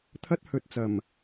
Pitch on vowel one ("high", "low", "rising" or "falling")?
high